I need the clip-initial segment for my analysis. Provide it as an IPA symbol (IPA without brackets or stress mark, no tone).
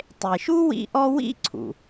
tˤ